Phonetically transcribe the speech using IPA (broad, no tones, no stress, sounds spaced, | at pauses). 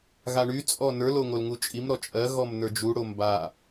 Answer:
ɣ a ɳ y t͡sʼ ɔ n ə˞ l o ŋ o l ŋ u t͡ʃʼ i m ɾ ɔ t͡ʃʼ ɜ ɣ ɔ m n ə˞ d͡ʒ u ɽ o m b a